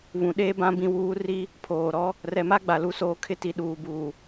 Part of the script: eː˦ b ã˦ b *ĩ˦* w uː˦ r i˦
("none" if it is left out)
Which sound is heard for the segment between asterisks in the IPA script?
ĩ˦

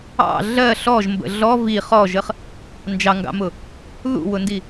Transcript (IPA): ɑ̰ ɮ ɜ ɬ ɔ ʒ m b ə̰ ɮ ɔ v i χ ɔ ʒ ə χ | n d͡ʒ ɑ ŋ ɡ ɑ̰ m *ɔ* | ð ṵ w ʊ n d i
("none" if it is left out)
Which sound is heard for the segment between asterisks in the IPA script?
ʊ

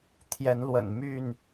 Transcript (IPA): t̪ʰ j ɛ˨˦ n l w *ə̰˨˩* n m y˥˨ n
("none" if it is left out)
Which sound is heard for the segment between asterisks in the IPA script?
ə̰˨˩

